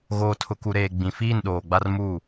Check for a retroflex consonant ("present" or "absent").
absent